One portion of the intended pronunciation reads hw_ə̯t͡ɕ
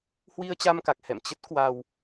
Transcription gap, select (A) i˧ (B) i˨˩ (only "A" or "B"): A